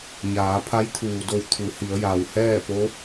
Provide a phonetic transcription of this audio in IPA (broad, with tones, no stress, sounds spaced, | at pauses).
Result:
ɲ aː˩˧ pʰ a˧˥ j t̪ʰ uː˩ d o˧˩ w t̪ʰ u˩˧ h i˩˧ ə̯ j a˩ w h ɛː˥˨ p o˧˥